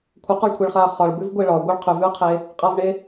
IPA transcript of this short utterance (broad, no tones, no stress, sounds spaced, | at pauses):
kʷʰ ə q ɒ ɭ kʷʰ ɛ ɭ χ a ɐ̯ χ ɒ ɭ b ʉ v ɡʷ e ɭ ɒ ɡʷ ə ɭ qʰ ʉ v ʉ ɐ̯ qʰ e | qʼ a v ɳ e